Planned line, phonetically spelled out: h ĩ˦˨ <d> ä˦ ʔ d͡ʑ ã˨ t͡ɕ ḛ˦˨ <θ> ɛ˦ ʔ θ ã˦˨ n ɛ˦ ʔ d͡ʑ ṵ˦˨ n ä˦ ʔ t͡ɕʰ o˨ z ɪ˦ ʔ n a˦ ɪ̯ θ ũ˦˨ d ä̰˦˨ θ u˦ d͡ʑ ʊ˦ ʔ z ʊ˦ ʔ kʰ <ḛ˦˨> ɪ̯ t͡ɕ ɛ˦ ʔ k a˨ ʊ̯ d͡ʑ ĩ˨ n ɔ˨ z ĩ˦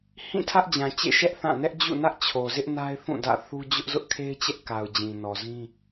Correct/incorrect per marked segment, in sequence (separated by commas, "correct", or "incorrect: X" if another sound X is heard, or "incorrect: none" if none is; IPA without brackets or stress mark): incorrect: tʰ, incorrect: ʃ, incorrect: e˦